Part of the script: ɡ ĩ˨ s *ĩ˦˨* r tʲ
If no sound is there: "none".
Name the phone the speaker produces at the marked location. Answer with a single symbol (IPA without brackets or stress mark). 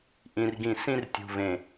ĩ˦